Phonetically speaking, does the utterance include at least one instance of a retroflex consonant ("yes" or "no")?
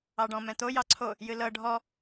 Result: yes